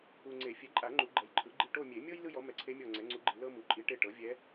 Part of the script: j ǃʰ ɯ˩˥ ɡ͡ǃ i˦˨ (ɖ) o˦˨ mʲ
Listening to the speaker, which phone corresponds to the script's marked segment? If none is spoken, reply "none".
ʈ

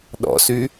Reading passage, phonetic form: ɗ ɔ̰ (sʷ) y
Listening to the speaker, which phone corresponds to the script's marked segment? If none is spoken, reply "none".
s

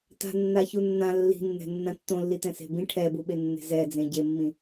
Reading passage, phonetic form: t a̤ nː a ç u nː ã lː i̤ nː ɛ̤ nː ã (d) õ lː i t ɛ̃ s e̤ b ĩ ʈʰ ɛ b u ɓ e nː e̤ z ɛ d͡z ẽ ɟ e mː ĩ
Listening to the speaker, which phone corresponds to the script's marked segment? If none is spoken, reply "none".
tː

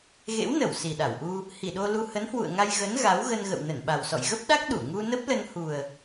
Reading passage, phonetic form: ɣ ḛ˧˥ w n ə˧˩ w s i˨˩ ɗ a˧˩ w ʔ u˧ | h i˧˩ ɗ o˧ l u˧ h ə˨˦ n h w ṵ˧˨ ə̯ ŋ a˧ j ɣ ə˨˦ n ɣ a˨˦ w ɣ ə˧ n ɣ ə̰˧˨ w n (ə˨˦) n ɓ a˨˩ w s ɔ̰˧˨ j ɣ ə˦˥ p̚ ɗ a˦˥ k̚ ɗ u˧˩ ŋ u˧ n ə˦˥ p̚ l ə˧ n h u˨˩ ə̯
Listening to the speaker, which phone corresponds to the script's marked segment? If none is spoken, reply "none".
ə˧˩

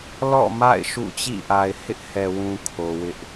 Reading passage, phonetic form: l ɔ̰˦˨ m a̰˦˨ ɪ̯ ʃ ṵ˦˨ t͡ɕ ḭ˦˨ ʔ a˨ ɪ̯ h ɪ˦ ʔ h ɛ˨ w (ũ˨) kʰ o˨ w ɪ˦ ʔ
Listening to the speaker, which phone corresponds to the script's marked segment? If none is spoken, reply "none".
ũ˨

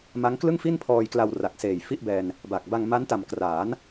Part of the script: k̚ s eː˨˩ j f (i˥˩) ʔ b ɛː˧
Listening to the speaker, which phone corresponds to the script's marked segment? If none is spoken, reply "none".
i˥˩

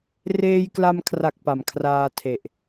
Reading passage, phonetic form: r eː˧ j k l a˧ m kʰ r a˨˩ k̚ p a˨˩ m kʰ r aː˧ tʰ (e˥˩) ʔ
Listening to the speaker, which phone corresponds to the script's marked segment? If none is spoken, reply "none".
e˨˩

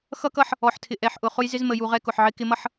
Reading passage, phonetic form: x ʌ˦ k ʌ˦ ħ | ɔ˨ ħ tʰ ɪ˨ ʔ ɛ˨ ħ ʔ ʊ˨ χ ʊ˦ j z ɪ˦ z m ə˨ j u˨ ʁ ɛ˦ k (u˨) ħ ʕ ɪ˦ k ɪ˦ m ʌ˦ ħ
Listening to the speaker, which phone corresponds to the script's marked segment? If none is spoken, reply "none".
ʊ˨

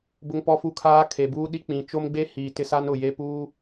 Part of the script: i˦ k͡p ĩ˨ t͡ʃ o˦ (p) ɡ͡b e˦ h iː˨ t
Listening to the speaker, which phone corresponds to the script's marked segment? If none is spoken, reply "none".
m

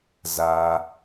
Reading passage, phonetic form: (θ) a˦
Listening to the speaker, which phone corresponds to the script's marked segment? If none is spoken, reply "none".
z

